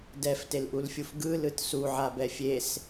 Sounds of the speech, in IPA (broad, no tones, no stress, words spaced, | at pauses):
dɛftelʔulfʲuf ɡɯlɯt suʕabɛ fʲes